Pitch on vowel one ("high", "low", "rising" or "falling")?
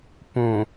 low